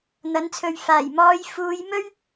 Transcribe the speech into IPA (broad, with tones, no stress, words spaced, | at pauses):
n̪ɐ˨˥nt͡sʰɵ˨ɥ faː˨˩jmɔː˨˧j fuː˨˧jmɵ˥ɥ